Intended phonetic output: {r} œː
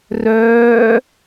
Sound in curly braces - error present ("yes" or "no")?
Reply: no